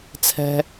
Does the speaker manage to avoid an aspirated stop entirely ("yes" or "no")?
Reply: no